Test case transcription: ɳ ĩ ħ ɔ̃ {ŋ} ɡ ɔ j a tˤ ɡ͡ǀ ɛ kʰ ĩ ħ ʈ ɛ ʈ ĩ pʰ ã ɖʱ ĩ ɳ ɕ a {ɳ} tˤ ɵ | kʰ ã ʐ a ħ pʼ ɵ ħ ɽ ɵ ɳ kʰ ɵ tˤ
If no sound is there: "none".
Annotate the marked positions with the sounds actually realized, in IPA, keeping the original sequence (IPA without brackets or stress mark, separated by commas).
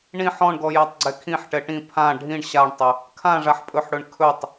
ɳ, ɳ